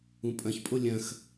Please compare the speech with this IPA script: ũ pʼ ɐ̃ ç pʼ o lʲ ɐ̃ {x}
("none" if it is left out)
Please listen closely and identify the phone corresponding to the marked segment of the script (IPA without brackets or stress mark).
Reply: x